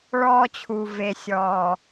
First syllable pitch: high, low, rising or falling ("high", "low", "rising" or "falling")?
high